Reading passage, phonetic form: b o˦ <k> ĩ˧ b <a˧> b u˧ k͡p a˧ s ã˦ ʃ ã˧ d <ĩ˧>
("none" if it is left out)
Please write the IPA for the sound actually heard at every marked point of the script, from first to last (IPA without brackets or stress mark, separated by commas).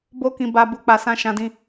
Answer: k, a˧, ĩ˧